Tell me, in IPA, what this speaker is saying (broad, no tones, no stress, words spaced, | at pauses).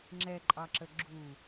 ŋ͡ǁɛǃʼɑǁə ɡ͡ǁu